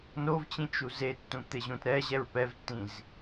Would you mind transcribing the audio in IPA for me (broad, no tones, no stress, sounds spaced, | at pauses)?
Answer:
n o v t͡ɕ ĩ t͡ʃ u z e tː ũ t̪ e ʑ ũ t ɾ ɛ ʑ ɛ ɹ p ɛ v tː ĩ z